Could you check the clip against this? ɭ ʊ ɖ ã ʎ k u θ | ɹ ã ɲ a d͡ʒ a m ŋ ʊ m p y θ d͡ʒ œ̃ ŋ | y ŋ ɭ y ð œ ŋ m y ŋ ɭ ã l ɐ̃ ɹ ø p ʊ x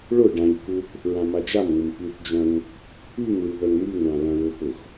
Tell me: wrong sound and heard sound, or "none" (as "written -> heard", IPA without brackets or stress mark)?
ɲ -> m